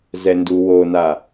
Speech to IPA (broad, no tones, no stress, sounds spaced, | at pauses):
z ɛ n d u w o n a